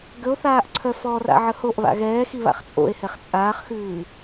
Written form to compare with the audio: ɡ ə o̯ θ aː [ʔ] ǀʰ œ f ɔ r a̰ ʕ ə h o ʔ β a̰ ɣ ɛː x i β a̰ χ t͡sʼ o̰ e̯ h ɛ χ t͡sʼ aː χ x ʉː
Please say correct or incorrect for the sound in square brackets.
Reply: correct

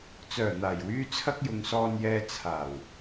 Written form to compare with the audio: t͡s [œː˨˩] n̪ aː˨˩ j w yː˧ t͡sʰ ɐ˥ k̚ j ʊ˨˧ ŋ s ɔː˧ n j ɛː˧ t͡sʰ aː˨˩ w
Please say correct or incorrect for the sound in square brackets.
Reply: correct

